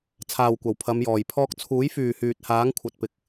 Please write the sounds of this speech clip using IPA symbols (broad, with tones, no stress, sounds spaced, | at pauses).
t͡sʰ aː˨ w kʷ ɐ˨˩ w pʰ ɐ˨˧ m j ɔː˨˩ j pʰ ɔː˧ k̚ t͡sʰ uː˨˥ j f yː˨ h yː˨ t̚ h aː˨˥ ŋ kʷʰ ɐ˨ t̚ p ɪ˨˥ k̚